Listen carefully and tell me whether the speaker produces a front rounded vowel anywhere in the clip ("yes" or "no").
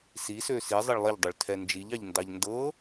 yes